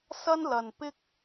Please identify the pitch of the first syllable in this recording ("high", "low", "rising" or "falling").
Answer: high